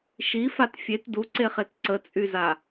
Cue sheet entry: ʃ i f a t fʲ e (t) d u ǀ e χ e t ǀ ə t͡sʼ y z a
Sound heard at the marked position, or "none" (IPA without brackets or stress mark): t